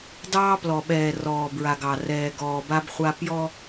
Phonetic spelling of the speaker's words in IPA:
d ɑː˦ p l ɔ˨ ɓ ɛː˨ r ɔː˨ b ɹ a˨ ɡ ɑ˨ r ɛː˨ ɡ ɔː˨ b a˦ b χʷ a˦ p j ɔ˦

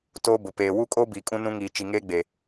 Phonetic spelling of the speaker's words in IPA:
t oː˦ b ʊ˨ p eː˨ w u˦ kʼ o˦ b iː˨ kʼ ũ˦ n ũ˦ ŋ iː˨ t͡ʃ i˨ ŋ eː˦ ɡ͡b e˨

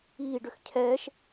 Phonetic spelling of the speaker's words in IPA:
iː ɖ ʏ x cʰ ɛː ʃ

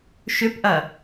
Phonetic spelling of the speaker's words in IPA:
ʃ ʏ p ʔ ɐ

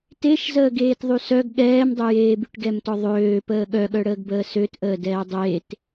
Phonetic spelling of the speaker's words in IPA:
t e ʃ z əː ɡ eː t ðˤ y s œ ɡ ɠ ɛː m dˤ ø j eː b y ʈ ɡ ɛ m t ɔ ðˤ øː p əː ɠ œ ɠ œ ɽ əː ɡ b əː s ø t ʔ əː d ɛː dˤ eː t

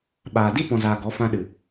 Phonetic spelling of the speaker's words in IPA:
ɓ aː˨ d i˦ p ɔ̃˨ z aː˨ ɡ ɔ˨˦ f ã˧ ɗ ɨ˨

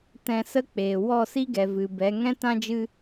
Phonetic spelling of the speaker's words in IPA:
t ɛ̃˧ s ə˦ k͡p eː˨ w ɔ˦˨ s i˦ ɡ ɛ˨ v ɨ˨ b ɛ˨˦ ŋ ɛ̃˦ t ã˦ d͡ʒ ɨ˦

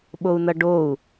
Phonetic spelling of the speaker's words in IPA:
ɓ o u̯ n ʌ ɖ o u̯

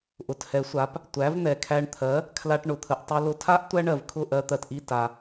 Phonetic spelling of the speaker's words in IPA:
ʔ ʊ˩ t h ɛ˩˥ sʷ a˩˥ p | tʷ æ˩˥ v n̪ ɛ˩ kʰ æ˧ ɳ t̪ʰ ɜ˩˥ | kʰ l a˧ ʈ ɳ ʊ˩ t̪ʰ ə˩ ʔ tˤ i˧ l ʊ˧ tʰ a˥ ʔ tʷ æ˥ ɳ ɜ˩ v kʰ ʊ˥˩ ʔ ɜ˧ t̪ ɜ˩ t ʔ i˥˩ t a˩

